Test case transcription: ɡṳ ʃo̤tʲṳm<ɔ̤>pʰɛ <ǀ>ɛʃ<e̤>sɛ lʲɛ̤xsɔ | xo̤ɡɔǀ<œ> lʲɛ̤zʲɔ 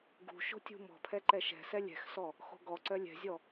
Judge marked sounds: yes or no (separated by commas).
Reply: yes, no, no, yes